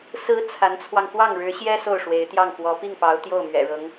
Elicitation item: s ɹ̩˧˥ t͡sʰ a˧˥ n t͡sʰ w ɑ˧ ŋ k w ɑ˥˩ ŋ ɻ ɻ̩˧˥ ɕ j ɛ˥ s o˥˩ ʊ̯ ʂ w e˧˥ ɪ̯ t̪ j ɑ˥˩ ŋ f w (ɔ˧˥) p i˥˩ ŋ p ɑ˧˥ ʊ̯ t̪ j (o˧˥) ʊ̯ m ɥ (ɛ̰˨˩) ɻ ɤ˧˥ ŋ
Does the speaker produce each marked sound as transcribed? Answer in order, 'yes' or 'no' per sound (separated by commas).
yes, no, yes